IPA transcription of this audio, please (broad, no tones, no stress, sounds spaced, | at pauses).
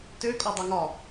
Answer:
t ø kʼ ɔ dˤ ɵ ŋ ɒ